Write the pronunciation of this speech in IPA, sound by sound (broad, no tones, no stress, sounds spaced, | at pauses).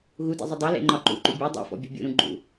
ɣ u d ḛ zˤ ɪ dˤ e l ḛ ŋ͡ǃ ɒ ǃ ṵ ǃ ṵ bʲ ɔ dˤ ḛ f ɔ̰ bʲ ɔ̤ bʲ ṵ ɾ ũ ɡ͡ǃ ṵ